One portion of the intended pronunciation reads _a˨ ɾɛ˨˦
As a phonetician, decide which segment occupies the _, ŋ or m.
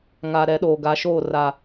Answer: ŋ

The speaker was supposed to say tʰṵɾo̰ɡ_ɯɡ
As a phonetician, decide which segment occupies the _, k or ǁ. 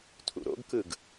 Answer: k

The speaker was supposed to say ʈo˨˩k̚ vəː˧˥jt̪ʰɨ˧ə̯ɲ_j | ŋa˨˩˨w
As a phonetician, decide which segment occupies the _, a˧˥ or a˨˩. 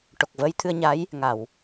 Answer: a˧˥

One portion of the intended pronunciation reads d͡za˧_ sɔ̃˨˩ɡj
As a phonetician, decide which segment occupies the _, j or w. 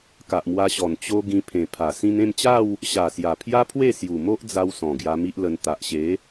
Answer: w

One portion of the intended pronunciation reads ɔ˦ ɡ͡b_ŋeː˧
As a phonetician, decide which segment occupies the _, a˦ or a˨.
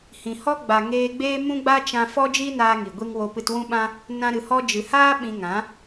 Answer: a˨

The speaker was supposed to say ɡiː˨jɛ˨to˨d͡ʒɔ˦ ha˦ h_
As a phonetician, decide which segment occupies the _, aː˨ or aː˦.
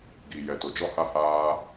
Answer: aː˦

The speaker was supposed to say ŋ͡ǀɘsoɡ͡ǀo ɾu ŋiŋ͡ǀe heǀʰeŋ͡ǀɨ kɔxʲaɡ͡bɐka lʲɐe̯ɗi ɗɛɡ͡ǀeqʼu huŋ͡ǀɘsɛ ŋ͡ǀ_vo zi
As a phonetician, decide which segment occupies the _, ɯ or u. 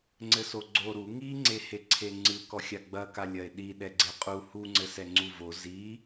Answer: u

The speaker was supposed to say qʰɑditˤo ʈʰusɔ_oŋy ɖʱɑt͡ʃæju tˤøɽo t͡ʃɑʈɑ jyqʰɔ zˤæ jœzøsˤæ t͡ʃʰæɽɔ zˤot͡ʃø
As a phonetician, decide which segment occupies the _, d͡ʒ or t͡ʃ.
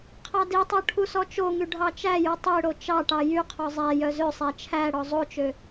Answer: t͡ʃ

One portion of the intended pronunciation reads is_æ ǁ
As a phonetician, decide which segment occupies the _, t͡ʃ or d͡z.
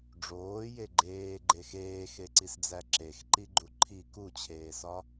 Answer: d͡z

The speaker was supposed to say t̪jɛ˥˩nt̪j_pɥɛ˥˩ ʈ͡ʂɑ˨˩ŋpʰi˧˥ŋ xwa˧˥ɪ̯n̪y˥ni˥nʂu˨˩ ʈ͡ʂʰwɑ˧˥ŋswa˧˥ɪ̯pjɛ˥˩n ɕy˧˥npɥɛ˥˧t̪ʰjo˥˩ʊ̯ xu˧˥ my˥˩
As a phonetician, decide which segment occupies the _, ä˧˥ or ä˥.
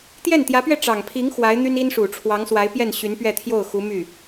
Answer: ä˧˥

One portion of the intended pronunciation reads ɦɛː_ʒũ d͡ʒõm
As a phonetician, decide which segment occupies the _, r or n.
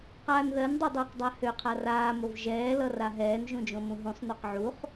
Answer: n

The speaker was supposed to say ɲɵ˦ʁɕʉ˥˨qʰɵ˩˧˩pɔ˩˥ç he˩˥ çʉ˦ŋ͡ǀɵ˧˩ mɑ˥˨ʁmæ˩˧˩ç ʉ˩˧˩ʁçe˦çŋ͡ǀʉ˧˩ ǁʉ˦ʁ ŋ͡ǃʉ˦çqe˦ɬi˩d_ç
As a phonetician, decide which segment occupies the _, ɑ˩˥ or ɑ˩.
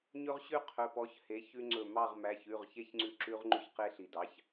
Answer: ɑ˩˥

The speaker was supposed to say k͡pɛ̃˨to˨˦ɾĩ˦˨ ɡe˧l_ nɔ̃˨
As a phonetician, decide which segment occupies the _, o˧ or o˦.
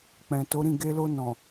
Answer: o˧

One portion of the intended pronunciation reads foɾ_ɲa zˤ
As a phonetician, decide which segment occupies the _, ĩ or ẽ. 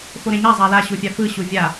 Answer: ẽ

